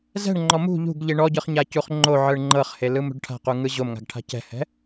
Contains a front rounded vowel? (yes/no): no